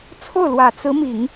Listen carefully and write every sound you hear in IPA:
t͡sʰ o˥˩ ʊ̯ l w ä˨˩ t͡s ɹ̩˧˥ m i˨˩˦ ŋ

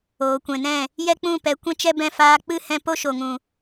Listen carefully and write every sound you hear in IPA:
oː˨ kʷ ɛ̃˨ n ɛ̃˦˨ | j ɛ˦ k͡p ũ˦˨ p ɛ˨˦ kʷ ɛ̃˦ t͡ʃ ɛ˦ b ɛ̃˦˨ f aː˧ k͡p ɨ˦˨ h ɛ̃˧ p o˦ ʃ o˨ ŋ ũ˨

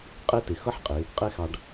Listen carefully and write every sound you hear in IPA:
qʼ e˥ t ɪ˩˧ x ʌ˥ ħ qʼ ɪ˩˧ | qʼ e˥ x ɑ˧ ɖ

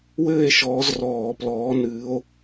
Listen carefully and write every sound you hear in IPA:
w ɘː˥˨ e̯ ʃ ɔː˨˦ z r ɔː˧˩˧ p l ɔː˨˦ n ɨː˨˦ o̯

